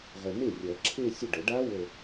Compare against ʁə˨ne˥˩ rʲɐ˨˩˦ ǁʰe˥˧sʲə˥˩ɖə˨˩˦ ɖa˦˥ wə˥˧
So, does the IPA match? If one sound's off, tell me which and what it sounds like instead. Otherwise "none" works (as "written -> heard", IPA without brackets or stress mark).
none